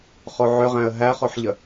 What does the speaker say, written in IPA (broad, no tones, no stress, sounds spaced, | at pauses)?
χ o ʕ ʏ ʁ æ̃ ə̯ ɦ æ χ o ħ ʎ ə